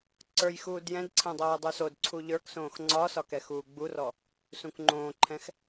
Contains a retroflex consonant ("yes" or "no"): no